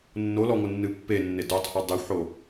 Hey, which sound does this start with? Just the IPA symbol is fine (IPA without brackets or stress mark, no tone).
nː